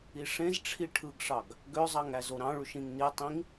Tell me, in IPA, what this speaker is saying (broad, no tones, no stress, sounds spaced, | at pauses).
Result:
i ʂ ẽ z ʈ͡ʂʰ i ʈʰ ɯ ɡ ʂ ɑ ɡ | ɡ ø zˤ ɑ ŋ æ z o ɾ ɑ̃ ɭ y ʃ ĩ ŋ n i tˤ ĩ ŋ